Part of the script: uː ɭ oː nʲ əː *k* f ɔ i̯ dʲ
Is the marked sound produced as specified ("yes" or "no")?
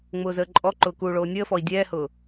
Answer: no